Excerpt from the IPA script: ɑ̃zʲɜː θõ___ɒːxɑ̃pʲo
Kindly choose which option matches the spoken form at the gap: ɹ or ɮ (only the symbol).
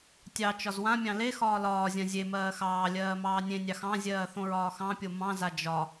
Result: ɹ